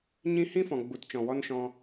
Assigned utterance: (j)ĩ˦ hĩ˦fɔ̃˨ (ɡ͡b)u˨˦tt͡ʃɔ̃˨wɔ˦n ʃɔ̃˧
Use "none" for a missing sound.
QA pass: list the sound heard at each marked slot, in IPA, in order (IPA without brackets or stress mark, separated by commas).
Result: ɲ, ɡ͡b